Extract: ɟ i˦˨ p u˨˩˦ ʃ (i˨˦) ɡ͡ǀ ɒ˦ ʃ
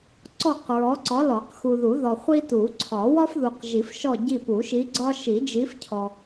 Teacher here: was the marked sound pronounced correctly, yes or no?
yes